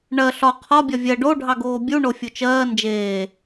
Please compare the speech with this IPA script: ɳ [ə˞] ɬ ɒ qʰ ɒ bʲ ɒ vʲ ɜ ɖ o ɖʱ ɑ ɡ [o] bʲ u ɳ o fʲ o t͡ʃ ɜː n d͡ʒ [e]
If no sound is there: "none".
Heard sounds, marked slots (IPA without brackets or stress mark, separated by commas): ɜ, oː, eː